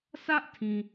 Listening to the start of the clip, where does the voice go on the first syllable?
high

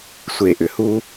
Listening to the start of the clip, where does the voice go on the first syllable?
low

